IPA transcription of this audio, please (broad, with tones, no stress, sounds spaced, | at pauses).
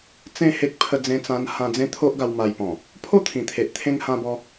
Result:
t͡s ẽ˥˧ h e˦ k̚ pʰ ə˧ d͡z ẽ˧ t͡s ã˧ n h ã˧ d͡z ẽ˦ t̪ʰ o˦ ʔ ɡ a˧ w m a˧ j p ɔ̃˨˩ | pʰ o˥˧ t̪ʰ ĩ˨˩ t̪ʰ e˨ ʔ t̪ʰ ẽ˧ ŋ h ã˧ b ɔ˧